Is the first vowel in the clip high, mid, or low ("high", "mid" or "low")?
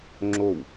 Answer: mid